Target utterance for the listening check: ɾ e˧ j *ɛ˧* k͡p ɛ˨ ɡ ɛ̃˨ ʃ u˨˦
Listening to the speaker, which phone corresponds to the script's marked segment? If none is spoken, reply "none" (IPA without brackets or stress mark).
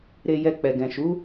ɛ˧